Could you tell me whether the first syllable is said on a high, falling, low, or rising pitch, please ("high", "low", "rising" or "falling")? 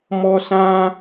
high